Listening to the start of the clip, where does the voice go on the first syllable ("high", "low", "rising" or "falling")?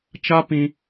high